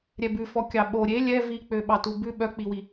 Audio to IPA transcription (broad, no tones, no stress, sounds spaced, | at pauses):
ɾʲ ɛ b ʉ f ɔ kʲ ɑ ɓ o ɾʲ e lʲ ɛ v i k͡p ø ɓ ɑ t u b ʉ ɓ œ k͡p i w i